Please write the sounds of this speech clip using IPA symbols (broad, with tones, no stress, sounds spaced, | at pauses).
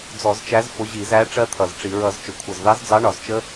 d͡z ɔ˧˩˧ z t͡ʃ æ˨˥ z f ʊ˨˥ ʑ i˧˩˧ z æ˨˥ ʈ͡ʂ ɜ˦˥ t̪ʰ ʌ˨˩ z ʈ͡ʂ i˧˩˧ ɹ ʌ˧˩˧ z t͡ʃ ʊ˨˩ kʷʰ ʌ˨˩ z ð ɑ˨˥ z d͡z ɑ˨˥ ɳ ɒ˨˩ z t͡ʃ ə˦˥